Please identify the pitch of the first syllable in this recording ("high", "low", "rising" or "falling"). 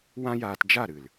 high